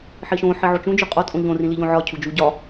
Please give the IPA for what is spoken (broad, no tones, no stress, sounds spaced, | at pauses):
ħ i ʃ õ ħ i ʕ o t͡ʃ ũ d͡ʒ u qʼ ɒ tʼ õ ʎ õ r ĩ l i ʎ õ ʕ ɒ cʰ u d͡ʒ u ɟ ɒ